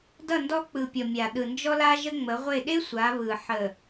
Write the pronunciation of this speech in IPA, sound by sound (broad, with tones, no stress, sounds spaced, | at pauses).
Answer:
d ʌ˦˨ n d ɔ˦ k͡p ɯ˨ pʲ ɔ˨ mʲ a˨ ɗ ɯ˨ n d͡ʒ ɔ˦ l a˦ ʒ ə˦ ŋ͡m ə˨˦ ʁʷ e˦˨ ɗ e˦ sʷ a˨˦ β ɯ˨ ħ ə˨